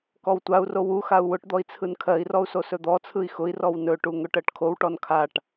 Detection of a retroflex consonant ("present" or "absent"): present